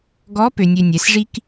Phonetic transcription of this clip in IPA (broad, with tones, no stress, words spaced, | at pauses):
ɡɔ˧˥ pø˧nʲø˧nʲɛ˩˧sʐi˥k